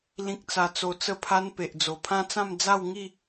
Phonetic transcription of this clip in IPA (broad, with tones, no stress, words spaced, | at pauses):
lĩ˦k̚t͡sa˧ t͡so˧t͡sə˥˧pʰa˦n pe˨ʔd͡zo˨˩pʰã˦t͡sã˥˧m d͡za˥˧wŋi˥˧